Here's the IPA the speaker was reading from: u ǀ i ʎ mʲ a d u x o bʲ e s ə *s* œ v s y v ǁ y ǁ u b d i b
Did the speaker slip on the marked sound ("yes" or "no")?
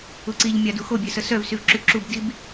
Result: no